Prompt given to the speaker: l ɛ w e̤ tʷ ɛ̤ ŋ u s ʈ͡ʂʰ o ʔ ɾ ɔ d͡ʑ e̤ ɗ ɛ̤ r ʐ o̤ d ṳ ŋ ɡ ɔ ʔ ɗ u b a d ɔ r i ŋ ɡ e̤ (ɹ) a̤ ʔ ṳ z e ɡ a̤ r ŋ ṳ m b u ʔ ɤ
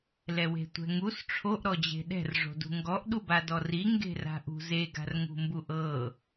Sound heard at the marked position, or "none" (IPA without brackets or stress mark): r